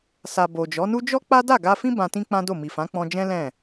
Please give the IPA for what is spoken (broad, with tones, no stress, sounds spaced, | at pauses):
s a˨ b o˨ d͡ʒ ɔ˨˦ n u˦ d͡ʒ ɔ˦ k͡p a˦ d a˦˨ ɡ a˧ f ĩ˦ b ã˧ t ĩ˦ k͡p ã˦ d o˦˨ m i˨ f ã˨˦ k͡p ɔ̃˧ d͡ʒ ɛ̃˦ l ɛ̃˦˨